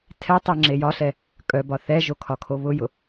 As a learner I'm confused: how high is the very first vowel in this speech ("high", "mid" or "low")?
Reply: mid